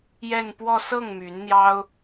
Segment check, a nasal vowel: absent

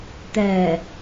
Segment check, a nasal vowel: absent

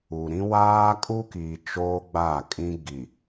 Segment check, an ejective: present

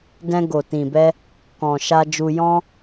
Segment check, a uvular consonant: absent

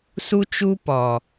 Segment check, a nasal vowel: absent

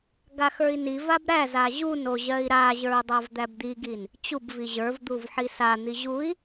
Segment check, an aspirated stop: absent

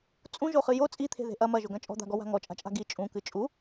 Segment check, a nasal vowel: present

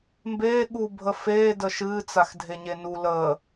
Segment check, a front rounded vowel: absent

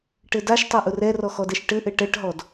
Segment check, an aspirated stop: absent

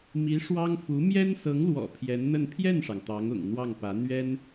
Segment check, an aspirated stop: present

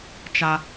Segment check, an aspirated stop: absent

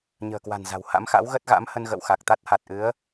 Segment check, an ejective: absent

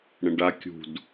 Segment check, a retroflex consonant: present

